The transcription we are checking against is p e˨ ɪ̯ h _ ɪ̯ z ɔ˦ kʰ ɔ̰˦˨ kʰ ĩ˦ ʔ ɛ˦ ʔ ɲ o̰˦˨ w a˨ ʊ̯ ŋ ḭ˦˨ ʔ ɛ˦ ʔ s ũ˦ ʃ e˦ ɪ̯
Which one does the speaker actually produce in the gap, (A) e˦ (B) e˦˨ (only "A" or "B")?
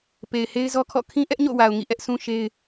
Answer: A